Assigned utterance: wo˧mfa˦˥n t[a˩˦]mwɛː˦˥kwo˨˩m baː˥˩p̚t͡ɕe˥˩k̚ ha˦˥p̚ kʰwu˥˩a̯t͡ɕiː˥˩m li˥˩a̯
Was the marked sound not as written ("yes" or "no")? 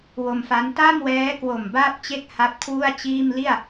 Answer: yes